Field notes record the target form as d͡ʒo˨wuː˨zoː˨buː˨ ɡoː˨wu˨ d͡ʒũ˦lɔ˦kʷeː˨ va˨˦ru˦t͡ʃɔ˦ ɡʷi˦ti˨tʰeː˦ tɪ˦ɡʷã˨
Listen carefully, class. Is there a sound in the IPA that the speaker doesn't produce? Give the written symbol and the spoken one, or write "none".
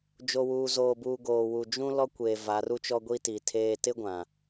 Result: none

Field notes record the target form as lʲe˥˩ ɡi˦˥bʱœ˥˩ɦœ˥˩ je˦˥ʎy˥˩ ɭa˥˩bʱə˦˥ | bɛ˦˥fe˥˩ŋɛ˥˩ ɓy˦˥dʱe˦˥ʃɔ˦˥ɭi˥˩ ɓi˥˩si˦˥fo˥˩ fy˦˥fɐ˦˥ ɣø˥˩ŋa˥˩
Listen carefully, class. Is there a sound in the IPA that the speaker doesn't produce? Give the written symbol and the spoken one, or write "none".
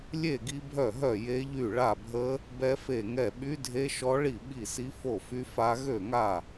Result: ɐ˦˥ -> a˦˥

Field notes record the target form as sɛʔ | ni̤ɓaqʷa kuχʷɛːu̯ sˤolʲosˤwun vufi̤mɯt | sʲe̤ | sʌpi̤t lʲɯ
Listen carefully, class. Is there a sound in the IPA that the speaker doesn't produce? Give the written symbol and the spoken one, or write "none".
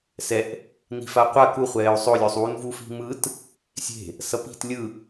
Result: ɓ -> f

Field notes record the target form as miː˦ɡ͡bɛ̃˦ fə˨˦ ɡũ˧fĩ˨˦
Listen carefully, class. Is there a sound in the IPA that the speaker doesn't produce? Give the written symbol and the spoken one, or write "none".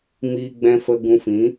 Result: ə˨˦ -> ə˧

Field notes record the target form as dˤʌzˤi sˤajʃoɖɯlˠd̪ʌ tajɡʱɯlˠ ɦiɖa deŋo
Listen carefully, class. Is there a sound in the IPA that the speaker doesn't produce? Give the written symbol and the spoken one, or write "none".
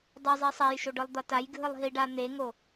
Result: d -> n̪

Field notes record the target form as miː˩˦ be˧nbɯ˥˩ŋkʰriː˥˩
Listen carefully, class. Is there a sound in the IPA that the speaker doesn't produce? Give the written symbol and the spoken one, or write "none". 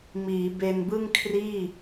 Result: none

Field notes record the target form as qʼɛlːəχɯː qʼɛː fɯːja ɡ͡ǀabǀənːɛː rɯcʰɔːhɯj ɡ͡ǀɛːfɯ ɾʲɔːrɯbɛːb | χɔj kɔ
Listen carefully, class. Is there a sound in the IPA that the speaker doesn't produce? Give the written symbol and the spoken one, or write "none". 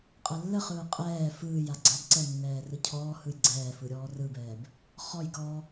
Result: none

